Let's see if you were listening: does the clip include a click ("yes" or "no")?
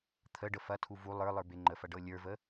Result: yes